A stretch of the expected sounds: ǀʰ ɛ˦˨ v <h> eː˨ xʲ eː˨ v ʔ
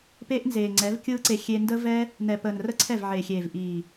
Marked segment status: incorrect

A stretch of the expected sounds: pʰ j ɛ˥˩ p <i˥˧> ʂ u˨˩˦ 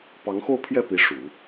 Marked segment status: incorrect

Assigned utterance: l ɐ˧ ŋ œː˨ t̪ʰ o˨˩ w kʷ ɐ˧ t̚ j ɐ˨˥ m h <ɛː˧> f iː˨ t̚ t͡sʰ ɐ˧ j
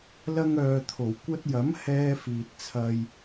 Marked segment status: correct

